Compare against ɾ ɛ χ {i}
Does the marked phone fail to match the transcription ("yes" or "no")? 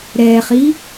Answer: no